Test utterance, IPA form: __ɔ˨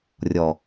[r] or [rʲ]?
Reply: rʲ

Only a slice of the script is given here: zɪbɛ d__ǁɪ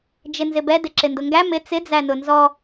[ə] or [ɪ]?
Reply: ɪ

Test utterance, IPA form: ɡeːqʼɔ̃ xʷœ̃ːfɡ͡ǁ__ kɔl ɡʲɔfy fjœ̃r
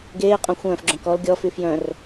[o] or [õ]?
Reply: õ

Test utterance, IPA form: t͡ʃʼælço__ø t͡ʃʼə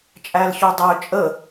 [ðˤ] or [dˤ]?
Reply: dˤ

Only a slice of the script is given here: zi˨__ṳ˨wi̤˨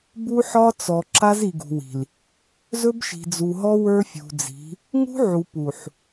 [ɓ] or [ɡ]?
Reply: ɡ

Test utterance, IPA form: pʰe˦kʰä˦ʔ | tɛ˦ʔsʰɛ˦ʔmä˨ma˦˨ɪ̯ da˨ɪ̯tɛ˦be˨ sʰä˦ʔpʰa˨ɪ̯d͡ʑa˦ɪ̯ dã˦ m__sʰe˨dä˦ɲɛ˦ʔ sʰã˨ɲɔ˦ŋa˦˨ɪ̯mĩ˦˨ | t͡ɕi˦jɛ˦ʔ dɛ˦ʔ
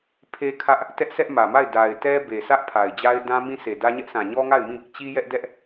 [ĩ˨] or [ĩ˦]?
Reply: ĩ˦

